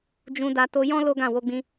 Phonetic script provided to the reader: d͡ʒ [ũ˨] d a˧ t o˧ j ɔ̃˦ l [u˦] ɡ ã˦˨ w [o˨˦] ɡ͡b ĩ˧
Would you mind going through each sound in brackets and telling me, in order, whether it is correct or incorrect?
incorrect, incorrect, incorrect

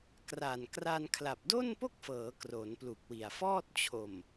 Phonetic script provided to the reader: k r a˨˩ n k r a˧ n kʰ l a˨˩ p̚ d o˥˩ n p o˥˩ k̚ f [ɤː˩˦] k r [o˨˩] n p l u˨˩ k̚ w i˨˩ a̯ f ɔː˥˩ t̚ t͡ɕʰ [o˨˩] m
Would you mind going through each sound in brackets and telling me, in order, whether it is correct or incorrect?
correct, incorrect, correct

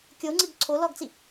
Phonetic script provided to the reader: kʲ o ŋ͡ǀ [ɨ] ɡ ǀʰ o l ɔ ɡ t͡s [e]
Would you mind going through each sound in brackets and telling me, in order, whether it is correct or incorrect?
correct, incorrect

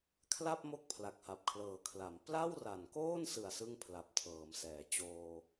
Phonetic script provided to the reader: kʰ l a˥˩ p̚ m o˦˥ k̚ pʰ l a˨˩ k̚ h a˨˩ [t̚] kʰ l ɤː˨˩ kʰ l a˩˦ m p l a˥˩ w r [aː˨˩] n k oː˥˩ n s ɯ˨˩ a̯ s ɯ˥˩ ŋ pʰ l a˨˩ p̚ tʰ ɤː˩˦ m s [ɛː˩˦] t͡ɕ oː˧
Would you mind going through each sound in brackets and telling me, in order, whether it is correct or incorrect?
incorrect, incorrect, correct

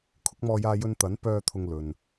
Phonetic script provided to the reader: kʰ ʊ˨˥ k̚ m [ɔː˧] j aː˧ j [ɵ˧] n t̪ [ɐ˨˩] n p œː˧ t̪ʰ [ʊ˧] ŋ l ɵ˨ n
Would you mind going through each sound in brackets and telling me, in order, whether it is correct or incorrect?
correct, correct, incorrect, correct

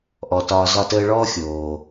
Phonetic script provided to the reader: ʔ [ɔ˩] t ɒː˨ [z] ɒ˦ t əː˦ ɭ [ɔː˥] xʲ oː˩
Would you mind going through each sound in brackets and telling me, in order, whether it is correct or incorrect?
correct, correct, correct

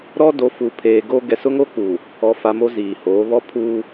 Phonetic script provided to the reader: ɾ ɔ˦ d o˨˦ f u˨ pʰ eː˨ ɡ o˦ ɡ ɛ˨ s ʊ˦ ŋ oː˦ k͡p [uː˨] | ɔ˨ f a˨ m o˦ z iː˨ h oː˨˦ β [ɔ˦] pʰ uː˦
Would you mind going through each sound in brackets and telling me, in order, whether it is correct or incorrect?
correct, correct

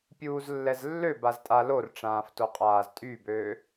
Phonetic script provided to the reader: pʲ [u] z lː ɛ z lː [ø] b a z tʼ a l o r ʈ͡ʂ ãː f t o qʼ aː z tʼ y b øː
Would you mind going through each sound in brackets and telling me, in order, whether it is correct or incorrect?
incorrect, correct

